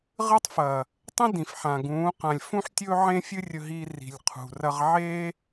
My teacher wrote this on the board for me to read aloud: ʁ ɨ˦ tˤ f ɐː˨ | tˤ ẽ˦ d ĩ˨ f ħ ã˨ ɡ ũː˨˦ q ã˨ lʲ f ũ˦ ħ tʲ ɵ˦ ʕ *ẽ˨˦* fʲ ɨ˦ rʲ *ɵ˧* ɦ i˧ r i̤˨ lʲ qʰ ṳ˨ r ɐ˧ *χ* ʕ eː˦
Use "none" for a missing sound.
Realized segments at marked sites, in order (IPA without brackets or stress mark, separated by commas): ẽ˦, ɵ˧, ʁ